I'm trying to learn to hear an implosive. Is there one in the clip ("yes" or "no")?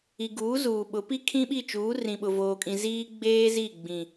yes